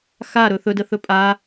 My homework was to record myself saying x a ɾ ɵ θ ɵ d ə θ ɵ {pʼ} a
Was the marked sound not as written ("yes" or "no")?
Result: no